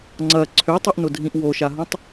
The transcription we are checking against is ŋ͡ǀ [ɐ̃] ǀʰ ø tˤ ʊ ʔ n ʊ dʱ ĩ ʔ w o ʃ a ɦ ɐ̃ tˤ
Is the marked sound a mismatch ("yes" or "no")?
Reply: yes